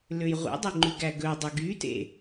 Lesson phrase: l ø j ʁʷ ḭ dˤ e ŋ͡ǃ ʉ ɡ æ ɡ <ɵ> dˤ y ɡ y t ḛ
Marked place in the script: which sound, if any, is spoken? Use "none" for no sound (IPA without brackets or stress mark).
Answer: ɵ